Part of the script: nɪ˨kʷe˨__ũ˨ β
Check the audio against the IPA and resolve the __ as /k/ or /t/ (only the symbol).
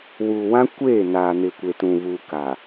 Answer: t